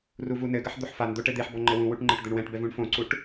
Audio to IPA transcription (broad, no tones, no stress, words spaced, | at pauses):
ruvunɘɡɐħ d̪oħfand̪o ʈɘd̪eħbɔ ŋ͡ǃɘwũwuʈ ŋ͡ǃɘʈd̪ɘɳwɛ̃ʈbɛv ũɳfõǀuʈ